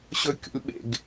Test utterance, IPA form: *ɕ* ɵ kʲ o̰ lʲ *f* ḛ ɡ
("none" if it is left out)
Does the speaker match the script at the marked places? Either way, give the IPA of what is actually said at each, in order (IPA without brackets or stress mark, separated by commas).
ɕ, ɓ